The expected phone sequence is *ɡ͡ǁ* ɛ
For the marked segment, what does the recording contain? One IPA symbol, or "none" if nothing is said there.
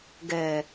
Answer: ɡ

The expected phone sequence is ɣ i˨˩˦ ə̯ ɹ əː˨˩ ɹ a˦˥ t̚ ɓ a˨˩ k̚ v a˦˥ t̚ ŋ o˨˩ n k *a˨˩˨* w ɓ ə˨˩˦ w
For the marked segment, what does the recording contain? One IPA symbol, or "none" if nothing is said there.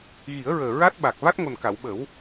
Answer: a˨˩˨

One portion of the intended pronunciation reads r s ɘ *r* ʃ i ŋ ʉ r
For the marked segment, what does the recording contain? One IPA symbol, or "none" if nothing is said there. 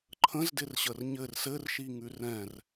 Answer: r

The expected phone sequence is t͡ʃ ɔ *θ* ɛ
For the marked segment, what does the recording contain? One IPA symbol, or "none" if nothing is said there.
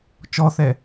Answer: θ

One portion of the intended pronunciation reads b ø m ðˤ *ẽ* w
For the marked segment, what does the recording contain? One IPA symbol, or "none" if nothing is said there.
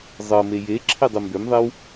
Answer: e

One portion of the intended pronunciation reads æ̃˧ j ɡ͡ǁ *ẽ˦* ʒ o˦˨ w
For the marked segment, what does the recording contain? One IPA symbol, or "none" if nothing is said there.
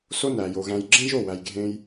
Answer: ẽ˦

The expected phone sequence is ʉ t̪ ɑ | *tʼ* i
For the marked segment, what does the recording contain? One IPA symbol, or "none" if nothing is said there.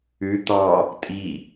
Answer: tʼ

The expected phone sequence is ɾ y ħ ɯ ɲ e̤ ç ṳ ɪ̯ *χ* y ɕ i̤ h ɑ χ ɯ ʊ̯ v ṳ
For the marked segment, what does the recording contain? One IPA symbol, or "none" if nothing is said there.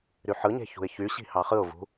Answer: ç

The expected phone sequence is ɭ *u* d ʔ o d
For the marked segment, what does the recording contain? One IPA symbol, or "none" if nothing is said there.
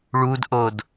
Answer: u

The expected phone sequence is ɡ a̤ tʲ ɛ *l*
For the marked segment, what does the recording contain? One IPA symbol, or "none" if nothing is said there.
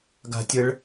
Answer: ɭ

